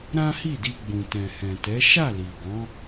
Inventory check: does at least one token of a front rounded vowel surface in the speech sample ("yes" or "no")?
no